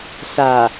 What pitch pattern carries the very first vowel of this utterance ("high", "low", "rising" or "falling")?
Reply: low